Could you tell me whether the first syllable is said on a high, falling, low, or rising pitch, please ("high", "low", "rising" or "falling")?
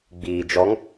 low